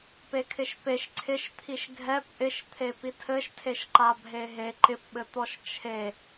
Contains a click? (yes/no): yes